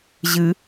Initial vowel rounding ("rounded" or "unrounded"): unrounded